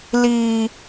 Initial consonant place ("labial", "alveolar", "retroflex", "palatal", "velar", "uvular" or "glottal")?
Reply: alveolar